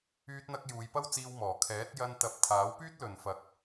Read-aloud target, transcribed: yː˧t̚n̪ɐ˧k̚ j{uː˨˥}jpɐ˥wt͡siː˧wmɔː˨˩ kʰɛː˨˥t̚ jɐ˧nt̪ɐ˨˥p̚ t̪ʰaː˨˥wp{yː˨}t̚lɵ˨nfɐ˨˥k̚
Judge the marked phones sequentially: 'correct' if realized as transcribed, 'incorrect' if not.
incorrect: uː˨˧, incorrect: yː˥

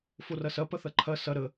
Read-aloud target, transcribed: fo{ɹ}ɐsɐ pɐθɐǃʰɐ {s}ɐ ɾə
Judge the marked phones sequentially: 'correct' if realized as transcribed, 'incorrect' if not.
incorrect: r, correct

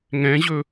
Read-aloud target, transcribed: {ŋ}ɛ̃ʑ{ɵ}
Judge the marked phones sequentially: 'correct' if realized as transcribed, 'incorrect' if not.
correct, correct

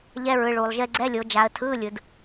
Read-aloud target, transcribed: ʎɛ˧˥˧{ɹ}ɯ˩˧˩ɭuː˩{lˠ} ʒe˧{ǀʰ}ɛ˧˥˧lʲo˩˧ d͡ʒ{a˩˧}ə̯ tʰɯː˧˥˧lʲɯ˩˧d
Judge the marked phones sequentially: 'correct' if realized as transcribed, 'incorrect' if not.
correct, correct, incorrect: ɡ͡ǀ, correct

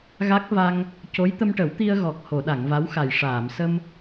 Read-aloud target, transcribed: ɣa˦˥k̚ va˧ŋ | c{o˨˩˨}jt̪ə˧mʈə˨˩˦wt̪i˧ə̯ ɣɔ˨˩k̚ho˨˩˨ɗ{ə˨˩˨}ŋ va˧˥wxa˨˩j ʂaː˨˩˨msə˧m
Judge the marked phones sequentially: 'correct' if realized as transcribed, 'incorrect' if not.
incorrect: o˧˥, incorrect: a˨˩˨

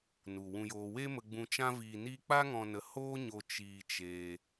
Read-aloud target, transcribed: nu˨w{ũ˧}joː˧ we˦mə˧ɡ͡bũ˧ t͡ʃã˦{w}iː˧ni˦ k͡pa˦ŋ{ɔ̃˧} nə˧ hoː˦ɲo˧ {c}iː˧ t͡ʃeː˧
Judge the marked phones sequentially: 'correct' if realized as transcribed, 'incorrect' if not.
correct, incorrect: v, correct, incorrect: t͡ʃ

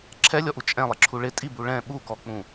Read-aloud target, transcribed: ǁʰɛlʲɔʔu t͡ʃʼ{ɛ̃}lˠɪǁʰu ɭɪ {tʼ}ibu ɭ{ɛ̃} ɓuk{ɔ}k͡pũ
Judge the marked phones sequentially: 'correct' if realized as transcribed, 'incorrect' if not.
correct, correct, correct, correct

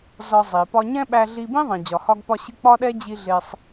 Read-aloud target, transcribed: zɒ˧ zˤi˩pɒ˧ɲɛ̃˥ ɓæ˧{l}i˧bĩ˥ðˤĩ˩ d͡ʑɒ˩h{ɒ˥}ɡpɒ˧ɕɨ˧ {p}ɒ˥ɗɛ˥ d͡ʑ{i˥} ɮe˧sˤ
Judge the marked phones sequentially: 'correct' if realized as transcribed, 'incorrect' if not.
incorrect: ɮ, incorrect: ɒ˧, incorrect: k͡p, incorrect: i˧

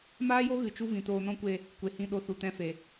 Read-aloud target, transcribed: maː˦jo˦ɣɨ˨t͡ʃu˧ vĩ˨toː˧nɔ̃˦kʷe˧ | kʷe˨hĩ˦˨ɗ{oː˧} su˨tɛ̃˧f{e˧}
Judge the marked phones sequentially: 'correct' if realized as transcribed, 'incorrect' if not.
incorrect: o˧, incorrect: e˨

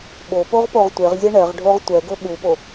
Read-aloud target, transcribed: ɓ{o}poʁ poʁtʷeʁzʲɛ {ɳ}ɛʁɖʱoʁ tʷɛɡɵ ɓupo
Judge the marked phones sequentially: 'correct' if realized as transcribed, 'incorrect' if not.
correct, correct

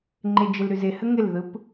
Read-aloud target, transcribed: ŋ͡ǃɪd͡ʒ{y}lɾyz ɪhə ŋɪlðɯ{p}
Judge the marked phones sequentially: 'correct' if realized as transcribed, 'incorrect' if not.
incorrect: ɪ, correct

